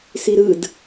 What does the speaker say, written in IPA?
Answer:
siɾɯd

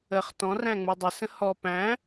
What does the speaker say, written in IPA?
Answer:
əχ tɔ̃ræ̃ŋ͡mu dˤɪsə̃ hɔ pæ̃

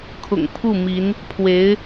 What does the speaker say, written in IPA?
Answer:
kʰʊ̰˨˩ŋ pʰu˥˩ mi˧˥n | pʰwe˧˥ɪ̯

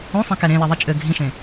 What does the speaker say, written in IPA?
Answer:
õsˤẽ kɛɾẽlɛ ðˤit͡ʃʼɘ ɡʱĩʃẽ

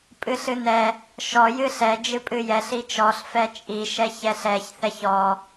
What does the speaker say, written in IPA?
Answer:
pʼɨɬɨnɛ | ʃɔ jɨɬɛ d͡ʒɨpʼɨjɛɬ it͡ʃɔɬ fɛt͡ʃʼi ʃɛçɛɬɛç θɛçɔ

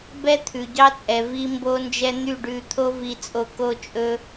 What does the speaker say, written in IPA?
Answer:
bɛ˦t̪ʰʉ˨ɟɑ˦t͡sʼɛ˨ vi˦mbo˦nd͡ʒɛ˦ n̪y˦˨ɖʉ˧ t̪ʰo˦vi˧t͡sʼo˧ ko˦t͡ʃʼɵ˦

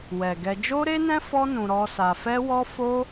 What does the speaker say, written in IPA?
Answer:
wɛ˨ɡɛ˧ d͡ʒo˦ɾe˦nɛ̃˦ fɔ˦ nũ˧ɾɔ˦sa˧ fɛ˦wɔ˦ fo˦

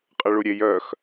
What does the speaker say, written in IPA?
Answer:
qʼəɭuɾʲej œx

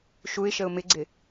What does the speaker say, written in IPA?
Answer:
ʃuɪ̯ʃəʊ̯ mɪɡ͡ǀɪ

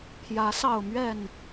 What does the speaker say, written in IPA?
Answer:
pʰjä˨˦ sɑ˥˨ʊ̯mɥɛ˥˨n

